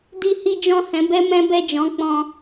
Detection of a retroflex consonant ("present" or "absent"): absent